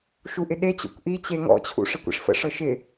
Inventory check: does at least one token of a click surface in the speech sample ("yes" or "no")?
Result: no